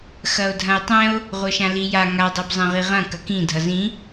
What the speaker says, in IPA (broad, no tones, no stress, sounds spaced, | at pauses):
x ɐ o̯ dʱ ɐ̃ e̯ tˤ ɛ̃ o̯ | ʁʷ ɤ ʃ ã l i j a ŋ a dˤ ɤ b zˤ ɛ̃ ʁ i ʁ ɐ̃ k ɐ k ĩ dʱ ʌ z ĩ